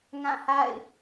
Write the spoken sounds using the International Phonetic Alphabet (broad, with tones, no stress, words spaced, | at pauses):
ŋã˦˨ha̰˦˨ɪ̯